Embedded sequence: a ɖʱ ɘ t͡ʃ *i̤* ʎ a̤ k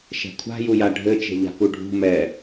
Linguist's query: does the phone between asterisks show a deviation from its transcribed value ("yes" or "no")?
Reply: yes